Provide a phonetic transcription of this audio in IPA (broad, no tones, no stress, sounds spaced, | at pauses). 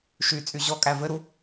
ʃ y t͡sʼ y ʑ ɔ kʼ æ v ɘ ɾ u